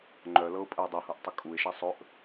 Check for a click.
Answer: present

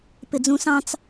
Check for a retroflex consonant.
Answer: absent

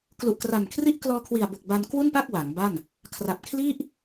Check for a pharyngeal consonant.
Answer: absent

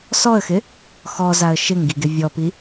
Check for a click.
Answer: absent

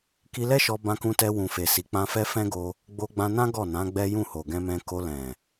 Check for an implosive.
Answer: absent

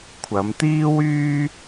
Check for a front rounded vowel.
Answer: present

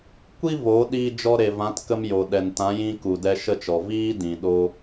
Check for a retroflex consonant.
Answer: absent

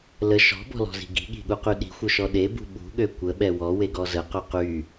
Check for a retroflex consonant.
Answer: absent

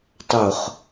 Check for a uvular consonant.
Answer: present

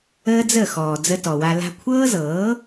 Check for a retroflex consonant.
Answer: absent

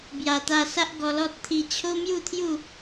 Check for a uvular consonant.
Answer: absent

